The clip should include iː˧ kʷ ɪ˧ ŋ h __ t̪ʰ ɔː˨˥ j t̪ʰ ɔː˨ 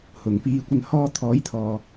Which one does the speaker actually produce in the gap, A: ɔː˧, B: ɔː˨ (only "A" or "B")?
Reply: A